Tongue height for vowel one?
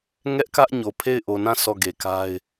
mid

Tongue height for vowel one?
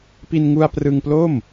high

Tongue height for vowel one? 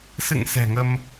high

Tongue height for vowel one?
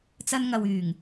low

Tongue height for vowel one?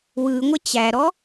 high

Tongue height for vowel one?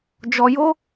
mid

